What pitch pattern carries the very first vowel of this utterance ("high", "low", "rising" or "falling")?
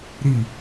falling